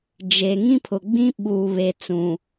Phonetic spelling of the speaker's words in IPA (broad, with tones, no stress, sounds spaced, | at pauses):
d͡ʒ e˨ ŋ ĩ˦ pʰ ʊ˨ ɡ͡b ĩ˦ ɓ uː˨ β e˨ t͡s ũ˨